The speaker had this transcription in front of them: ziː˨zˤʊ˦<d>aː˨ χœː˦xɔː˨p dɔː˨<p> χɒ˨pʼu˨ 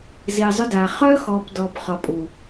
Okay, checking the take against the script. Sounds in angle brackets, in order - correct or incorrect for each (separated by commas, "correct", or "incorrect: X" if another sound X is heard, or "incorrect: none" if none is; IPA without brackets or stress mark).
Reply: correct, correct